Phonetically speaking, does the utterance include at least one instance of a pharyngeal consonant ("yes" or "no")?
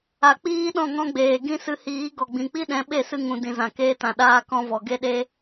no